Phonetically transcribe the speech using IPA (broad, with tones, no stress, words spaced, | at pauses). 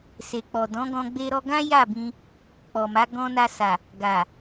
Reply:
se˨k͡pɔ˨ dɔ̃˨˦ɡɔ̃˧ ɡ͡be˧ ɾɔ˧ɡã˦ ja˦˨bĩ˧ | k͡pɔ˨ma˨˦ ɡɔ̃˧na˧sa˨ | ɡa˨